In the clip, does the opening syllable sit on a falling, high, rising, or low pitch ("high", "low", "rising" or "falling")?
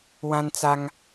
high